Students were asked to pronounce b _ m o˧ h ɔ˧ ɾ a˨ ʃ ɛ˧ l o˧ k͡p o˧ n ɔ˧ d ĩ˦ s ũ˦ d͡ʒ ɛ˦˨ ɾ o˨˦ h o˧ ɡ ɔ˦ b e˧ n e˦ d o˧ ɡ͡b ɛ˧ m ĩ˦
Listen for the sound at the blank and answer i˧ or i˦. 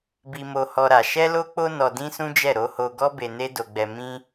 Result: i˧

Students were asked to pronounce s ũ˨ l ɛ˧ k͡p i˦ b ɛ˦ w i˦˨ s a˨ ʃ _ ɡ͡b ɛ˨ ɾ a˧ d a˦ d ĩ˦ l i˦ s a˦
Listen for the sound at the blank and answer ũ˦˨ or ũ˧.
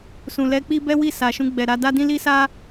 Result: ũ˧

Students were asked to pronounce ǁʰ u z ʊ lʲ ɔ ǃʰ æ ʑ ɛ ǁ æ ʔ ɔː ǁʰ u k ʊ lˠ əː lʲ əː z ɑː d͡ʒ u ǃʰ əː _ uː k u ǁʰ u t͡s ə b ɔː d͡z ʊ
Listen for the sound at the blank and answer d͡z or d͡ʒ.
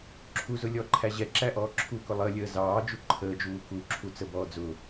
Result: d͡ʒ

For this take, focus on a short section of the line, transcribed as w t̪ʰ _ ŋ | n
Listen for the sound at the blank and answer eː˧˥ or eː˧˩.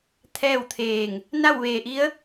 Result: eː˧˩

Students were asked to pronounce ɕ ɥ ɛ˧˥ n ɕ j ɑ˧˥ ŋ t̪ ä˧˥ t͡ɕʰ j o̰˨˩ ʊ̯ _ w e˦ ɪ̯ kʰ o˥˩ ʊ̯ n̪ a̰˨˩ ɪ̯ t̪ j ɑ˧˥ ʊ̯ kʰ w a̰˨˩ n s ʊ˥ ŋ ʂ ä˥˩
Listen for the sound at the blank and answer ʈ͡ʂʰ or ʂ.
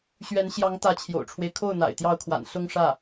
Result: ʈ͡ʂʰ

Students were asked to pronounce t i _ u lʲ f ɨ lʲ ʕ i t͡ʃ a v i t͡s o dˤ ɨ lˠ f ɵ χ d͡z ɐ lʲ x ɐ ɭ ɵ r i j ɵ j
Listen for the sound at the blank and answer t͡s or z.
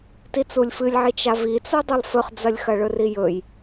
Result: t͡s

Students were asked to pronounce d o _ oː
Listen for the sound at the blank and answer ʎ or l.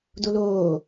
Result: l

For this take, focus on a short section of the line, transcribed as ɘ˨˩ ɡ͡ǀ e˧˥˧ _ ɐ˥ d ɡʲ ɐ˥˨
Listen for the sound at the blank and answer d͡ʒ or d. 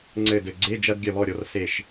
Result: d͡ʒ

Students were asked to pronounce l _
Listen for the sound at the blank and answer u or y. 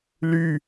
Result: y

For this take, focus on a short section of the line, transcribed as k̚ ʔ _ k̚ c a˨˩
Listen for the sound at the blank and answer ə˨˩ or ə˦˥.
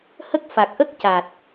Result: ə˦˥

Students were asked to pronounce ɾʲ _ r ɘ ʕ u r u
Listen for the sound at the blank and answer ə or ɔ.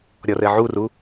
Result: ɔ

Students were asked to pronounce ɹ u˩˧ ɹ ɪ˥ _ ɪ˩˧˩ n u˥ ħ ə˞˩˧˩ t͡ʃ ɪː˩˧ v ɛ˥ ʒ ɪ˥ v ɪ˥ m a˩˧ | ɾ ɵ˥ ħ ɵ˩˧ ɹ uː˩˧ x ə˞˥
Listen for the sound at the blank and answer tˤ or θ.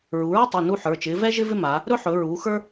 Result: tˤ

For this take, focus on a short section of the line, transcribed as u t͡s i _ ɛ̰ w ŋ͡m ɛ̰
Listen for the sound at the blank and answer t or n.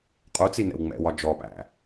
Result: n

